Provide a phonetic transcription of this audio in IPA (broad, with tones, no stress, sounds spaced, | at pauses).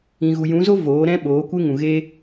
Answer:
ĩ˨ ɣ u˨ j ũ˨˦ z o˦ v oː˨˦ ɾ ɛ̃˦ ɓ oː˨˦ kʷ e˦ ŋ ũ˨ ɣ e˦